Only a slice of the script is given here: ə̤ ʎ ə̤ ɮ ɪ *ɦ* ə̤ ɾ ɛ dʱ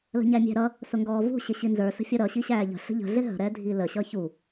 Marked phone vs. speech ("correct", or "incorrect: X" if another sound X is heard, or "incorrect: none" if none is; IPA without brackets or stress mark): correct